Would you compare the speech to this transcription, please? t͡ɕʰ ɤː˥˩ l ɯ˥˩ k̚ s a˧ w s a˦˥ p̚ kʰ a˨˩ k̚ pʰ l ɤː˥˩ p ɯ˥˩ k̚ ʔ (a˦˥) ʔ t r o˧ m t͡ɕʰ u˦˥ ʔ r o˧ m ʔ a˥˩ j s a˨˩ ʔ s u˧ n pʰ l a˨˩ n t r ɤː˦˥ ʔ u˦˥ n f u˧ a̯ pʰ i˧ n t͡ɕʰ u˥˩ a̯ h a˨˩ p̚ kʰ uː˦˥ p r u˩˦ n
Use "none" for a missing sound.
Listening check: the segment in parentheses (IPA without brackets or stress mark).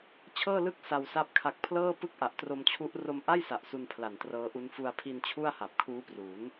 a˨˩